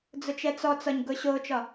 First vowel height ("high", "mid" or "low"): high